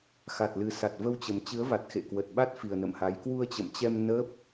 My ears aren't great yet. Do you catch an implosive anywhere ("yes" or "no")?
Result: yes